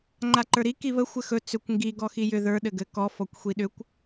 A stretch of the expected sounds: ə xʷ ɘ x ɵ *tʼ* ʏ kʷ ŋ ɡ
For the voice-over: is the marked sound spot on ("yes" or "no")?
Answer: no